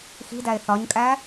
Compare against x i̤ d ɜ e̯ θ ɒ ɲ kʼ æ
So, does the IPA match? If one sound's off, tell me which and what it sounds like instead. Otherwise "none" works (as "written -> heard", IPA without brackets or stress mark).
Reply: ɜ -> æ